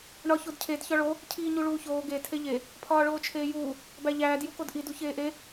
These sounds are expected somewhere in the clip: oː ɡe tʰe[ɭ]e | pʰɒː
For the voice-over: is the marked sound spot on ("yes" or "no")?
no